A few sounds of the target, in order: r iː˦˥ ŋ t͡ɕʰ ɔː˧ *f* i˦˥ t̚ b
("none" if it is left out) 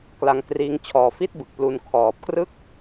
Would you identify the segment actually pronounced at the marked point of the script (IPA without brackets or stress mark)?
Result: f